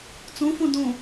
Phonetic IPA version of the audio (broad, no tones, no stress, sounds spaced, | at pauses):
t͡s õ f õ d õ